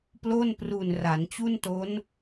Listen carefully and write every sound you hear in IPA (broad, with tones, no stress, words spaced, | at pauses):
plo˥˩npru˨˩n ra˩˦nt͡ɕu˥˩nto˦˥n